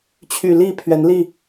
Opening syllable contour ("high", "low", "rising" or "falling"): low